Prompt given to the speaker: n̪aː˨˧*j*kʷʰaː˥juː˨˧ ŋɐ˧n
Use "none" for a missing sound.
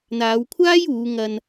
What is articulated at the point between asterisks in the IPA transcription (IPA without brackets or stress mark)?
w